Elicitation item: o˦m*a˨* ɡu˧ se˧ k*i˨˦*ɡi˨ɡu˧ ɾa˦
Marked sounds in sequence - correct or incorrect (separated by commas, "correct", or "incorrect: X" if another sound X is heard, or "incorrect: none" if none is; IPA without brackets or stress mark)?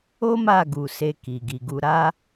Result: incorrect: a˦˨, incorrect: i˨